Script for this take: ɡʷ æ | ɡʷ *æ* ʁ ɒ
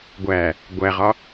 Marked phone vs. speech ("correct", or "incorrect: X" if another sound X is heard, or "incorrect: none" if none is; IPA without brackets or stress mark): correct